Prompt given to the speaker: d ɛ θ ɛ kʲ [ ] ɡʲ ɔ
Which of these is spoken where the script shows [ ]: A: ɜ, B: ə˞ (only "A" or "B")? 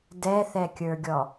B